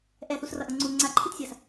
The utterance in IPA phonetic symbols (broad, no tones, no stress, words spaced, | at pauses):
ʔɛθusrʌʔʌ ŋ͡ǀu ŋ͡ǀaǃʰitsʲas